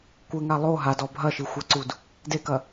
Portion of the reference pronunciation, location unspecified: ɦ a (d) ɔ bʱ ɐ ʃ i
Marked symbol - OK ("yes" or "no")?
yes